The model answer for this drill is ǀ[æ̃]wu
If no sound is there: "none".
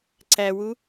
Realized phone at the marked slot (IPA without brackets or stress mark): æ